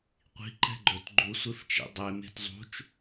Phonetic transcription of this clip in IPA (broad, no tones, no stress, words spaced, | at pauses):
qʷi̤ ǃɛ̤ɡ͡ǃɵt ɡ͡ǃusʷeft͡ʃḭ dˤeme̤t zˤṳt͡ʃ